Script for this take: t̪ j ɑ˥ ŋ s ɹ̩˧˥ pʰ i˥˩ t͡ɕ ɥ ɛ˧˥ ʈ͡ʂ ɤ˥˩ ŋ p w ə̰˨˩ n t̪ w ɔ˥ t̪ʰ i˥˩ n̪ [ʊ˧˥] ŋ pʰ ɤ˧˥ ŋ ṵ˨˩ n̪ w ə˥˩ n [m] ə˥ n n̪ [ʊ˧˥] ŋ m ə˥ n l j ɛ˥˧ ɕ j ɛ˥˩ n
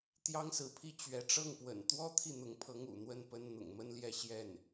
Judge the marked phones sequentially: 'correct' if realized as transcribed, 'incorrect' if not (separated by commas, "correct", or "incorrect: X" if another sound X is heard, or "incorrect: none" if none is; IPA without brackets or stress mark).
correct, incorrect: p, incorrect: ʊ̰˨˩